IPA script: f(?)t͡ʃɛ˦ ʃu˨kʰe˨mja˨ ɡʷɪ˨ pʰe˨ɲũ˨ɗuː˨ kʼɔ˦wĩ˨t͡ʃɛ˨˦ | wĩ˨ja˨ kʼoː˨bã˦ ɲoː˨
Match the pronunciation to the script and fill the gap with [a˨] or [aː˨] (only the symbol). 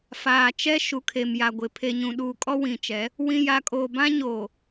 aː˨